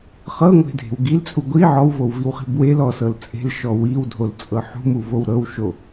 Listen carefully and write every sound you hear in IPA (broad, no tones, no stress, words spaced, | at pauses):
χɤŋʷe̤dʱe̤w ɡilt͡sʼu ɡʷi ʕɔwvowviwχi̤ bwelɔsɤl t͡sʼe̤lʃɔ wiwdʱolt͡sʼɤ ħṳmuvow ɾɤwʃo